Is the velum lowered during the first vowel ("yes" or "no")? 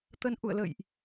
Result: no